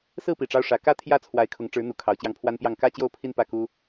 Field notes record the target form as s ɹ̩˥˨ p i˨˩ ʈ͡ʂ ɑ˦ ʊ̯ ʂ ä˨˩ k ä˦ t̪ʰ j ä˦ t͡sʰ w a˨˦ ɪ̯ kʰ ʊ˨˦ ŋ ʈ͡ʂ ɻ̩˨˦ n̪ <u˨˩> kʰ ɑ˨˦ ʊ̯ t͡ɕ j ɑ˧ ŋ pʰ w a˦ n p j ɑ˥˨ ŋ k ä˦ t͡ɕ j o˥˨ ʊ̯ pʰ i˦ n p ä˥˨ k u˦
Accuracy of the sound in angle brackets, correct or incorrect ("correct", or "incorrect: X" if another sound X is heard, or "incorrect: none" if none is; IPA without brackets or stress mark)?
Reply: correct